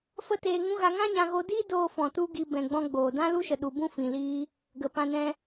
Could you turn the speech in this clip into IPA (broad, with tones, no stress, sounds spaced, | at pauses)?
f ə˦ t eː˧ ŋ ũ˦ ɣ a˧ ŋ ã˦ ɲ ã˧ ɣ o˧ d iː˦ d oː˧ f ɔ̃˨ t u˧ ɡ i˧ b ɛ̃˨ ɡ͡b ɔ̃˧ ɡ͡b oː˨ d ã˦ l u˦ ʃ ə˨ ɗ u˨ b ũ˦ f ĩ˨ l iː˦ | ɡ ə˨ p ã˧ n ɛ̃˦